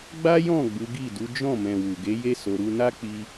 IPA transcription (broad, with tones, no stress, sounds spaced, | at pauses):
ɡ͡b a˦ j ɔ̃˦˨ ɡ͡b u˨˦ ɡ i˦˨ d u˨˦ d͡ʒ ɔ̃˦˨ m ɛ̃˨ w u˨ ɡ e˨˦ j e˦ s o˧ ɾ u˧ n a˦ k͡p i˧